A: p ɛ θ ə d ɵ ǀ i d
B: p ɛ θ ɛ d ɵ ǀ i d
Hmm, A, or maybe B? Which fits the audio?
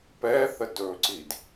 A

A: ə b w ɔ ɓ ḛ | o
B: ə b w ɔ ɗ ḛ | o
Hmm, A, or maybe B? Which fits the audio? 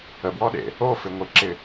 B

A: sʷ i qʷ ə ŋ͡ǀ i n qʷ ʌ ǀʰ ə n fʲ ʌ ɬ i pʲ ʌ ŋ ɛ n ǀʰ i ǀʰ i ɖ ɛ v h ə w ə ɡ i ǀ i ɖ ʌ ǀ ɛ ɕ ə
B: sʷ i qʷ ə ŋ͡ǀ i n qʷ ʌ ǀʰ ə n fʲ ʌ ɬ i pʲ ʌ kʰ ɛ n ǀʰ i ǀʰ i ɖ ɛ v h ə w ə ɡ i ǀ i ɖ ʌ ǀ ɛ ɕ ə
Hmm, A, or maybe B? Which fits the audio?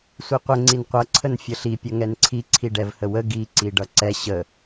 A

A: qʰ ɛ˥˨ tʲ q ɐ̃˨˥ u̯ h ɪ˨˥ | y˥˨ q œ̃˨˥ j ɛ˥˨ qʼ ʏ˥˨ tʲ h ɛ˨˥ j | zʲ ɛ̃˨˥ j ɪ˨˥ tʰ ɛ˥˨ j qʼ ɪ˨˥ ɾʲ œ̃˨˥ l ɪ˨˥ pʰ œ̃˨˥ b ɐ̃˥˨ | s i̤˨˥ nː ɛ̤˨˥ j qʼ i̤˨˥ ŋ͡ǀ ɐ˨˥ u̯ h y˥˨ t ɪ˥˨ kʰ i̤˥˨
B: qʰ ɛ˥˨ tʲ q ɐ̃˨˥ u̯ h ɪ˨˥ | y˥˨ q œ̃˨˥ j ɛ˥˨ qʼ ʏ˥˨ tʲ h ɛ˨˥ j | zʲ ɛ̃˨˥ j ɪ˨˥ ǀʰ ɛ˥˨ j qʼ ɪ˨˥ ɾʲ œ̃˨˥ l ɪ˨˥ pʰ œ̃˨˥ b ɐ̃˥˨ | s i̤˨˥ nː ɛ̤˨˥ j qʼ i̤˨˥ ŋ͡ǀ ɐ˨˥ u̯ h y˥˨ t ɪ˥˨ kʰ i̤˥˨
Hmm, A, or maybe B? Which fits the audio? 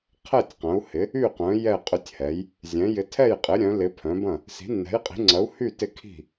A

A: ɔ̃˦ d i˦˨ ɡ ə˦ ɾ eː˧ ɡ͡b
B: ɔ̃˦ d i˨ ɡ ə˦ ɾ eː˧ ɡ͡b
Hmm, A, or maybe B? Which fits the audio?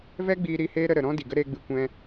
B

